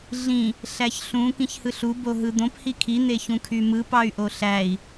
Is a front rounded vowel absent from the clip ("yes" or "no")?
no